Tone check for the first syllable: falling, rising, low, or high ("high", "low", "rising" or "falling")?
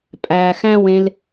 low